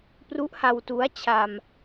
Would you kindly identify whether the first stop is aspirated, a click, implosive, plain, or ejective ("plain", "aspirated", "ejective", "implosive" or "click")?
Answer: plain